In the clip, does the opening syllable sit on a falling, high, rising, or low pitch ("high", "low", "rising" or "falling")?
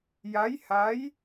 rising